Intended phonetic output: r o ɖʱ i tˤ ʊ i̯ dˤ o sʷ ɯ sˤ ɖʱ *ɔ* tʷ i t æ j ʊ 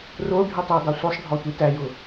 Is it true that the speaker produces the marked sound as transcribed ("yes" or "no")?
yes